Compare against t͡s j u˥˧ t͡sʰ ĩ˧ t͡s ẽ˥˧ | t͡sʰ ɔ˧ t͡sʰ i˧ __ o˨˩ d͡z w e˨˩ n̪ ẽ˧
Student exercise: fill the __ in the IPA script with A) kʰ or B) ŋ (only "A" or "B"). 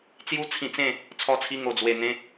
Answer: B